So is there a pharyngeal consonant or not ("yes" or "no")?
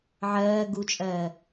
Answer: yes